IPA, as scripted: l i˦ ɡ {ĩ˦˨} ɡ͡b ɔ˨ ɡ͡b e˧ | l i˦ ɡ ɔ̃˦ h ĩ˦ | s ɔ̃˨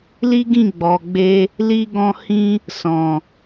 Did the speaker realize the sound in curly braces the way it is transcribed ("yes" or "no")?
yes